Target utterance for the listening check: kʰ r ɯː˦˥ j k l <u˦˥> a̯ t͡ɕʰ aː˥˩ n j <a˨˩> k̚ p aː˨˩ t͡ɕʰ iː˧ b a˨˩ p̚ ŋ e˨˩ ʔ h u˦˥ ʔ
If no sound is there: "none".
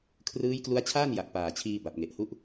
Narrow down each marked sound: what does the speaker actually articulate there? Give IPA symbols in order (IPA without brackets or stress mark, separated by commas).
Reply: u˦˥, a˨˩